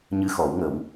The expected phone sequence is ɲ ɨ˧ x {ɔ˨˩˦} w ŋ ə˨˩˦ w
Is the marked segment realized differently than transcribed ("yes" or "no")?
no